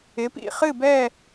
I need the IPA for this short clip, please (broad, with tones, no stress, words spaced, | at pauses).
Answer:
ɪ˩˥pḭ˥˨ χɨ˥˨bɛ˥˨